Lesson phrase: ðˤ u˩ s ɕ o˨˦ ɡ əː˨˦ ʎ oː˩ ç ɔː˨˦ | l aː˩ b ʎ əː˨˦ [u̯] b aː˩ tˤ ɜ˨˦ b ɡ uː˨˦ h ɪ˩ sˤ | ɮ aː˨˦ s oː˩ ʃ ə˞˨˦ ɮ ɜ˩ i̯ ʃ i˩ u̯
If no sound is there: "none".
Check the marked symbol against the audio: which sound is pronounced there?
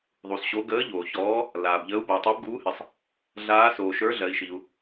u̯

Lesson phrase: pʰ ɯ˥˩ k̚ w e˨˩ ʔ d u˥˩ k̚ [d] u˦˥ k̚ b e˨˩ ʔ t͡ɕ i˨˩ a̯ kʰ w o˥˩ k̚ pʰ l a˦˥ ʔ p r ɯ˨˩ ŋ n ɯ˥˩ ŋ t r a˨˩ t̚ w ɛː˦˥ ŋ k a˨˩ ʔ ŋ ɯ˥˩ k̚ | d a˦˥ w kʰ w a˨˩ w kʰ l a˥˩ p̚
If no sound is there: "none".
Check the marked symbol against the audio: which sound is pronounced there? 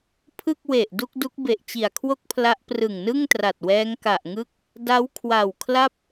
d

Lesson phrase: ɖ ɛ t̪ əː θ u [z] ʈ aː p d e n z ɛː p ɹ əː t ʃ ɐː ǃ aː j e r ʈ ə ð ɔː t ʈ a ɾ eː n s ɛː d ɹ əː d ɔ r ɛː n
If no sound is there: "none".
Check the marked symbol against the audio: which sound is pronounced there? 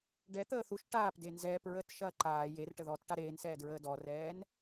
ʃ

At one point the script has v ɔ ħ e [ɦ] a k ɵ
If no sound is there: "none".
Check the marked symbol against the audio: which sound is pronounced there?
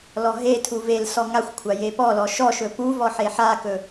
ħ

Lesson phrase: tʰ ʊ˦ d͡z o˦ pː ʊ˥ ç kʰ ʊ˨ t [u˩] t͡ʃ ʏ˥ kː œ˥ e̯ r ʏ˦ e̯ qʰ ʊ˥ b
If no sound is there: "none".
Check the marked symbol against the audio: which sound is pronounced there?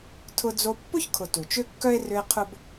u˩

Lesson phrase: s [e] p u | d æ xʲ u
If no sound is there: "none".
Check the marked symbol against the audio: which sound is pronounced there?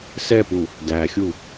ɛ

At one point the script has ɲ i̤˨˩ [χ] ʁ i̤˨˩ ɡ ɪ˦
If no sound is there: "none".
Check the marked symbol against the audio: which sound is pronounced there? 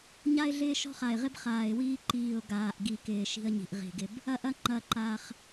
ʔ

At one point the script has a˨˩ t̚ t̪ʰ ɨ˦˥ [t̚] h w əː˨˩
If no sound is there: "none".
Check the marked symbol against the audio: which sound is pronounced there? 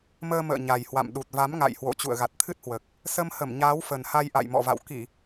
t̚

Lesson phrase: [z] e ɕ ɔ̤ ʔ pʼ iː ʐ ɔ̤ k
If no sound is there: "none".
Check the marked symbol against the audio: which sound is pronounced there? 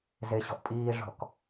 z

